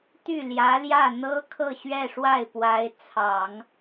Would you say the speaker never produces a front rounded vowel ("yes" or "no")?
no